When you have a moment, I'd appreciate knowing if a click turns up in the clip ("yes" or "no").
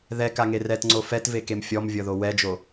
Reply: yes